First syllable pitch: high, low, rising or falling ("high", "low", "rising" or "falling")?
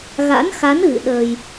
rising